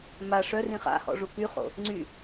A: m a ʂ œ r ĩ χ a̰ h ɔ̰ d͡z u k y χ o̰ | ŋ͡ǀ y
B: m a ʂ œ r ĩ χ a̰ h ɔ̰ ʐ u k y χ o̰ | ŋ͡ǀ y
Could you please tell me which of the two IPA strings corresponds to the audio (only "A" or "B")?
B